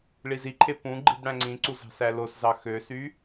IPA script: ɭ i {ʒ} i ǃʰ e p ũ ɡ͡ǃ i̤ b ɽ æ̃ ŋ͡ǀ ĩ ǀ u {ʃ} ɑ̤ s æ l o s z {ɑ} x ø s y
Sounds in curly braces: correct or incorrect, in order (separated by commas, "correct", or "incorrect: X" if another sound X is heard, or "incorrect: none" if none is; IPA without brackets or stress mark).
incorrect: z, incorrect: z, correct